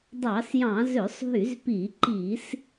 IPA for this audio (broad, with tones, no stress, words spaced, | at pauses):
dˤɑ˧˩˧sjɑ̃˧˩˧ zø˧˩˧sˤɦy˧˩˧zpiː˧˩˧ǃiː˧˩˧s